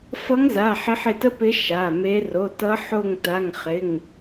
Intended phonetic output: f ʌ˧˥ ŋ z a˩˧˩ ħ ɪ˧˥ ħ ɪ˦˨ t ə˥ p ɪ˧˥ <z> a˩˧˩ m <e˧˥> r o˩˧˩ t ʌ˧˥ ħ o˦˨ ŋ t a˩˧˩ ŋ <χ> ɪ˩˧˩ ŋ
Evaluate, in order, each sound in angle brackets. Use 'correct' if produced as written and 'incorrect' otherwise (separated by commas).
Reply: incorrect, correct, correct